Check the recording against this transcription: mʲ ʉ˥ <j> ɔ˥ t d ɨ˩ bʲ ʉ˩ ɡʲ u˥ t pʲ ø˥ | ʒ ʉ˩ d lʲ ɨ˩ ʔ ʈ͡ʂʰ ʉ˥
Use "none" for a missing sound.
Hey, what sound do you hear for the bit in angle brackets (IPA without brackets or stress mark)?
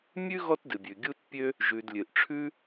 ɣ